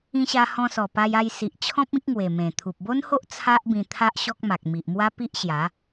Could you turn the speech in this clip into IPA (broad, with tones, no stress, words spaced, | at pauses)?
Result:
ĩ˧ɕa˧ hɔ̃˧sɔ˨˩ pa˧ja˧jsi˨ʔt͡ɕʰɔ̃˦p̚ ĩ˦k̚ŋwe˨˩mẽ˨˩ t̪ʰu˨p̚bo˦nho˦ʔ t͡sʰa˦ʔbĩ˧ t̪ʰa˦ʔɕɔ˦k̚ ma˨k̚ mi˨ʔmwa˦pi˦ʔɕja˨˦